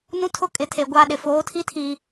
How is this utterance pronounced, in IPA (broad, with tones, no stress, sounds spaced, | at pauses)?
n ũ˦ tʰ ʊ˦ kʼ ɪ˨ tʰ e˨ ɡʷ a˦ ɗ ɪ˨ f oː˨˦ tʰ i˦ tʰ i˨